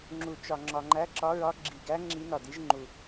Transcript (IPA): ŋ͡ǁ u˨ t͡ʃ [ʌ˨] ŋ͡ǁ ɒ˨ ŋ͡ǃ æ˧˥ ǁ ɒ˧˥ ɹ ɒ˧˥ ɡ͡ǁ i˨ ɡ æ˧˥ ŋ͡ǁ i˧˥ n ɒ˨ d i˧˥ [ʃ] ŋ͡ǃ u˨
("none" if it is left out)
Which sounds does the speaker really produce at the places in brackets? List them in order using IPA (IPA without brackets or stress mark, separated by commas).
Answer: ɒ˨, ʒ